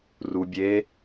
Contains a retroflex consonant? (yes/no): no